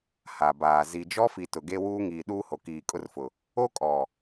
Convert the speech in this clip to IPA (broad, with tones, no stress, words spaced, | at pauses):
ha˨baː˨ zi˨d͡ʒɔ˦fi˨ tʊ˨ɡe˦ wuː˦ŋiː˨ ɗuː˦ho˨kiː˨ kʼʊ˦rfʊ˨ | o˦ kʼɔ˨